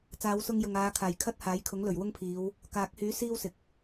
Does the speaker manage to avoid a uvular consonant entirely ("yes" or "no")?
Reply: yes